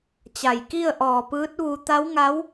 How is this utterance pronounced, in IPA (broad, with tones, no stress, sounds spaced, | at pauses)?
t͡ɕ a˧˩ j k i˥˨ ə̯ ʔ ɔː˧˩ p ɯː˧˥ t̚ ʋ u˧ t̪ a˧˥ w ŋ a˧˥ w